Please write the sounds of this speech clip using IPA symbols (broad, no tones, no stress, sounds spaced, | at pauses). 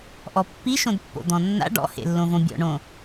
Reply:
ʔ ɔ pː i ʃ õ d pː o̰ d̪ ɔ̃ nː a̰ ɖ ɔ̰ h ḛ lː õ v õ bʲ ɔ̰ ɳ õ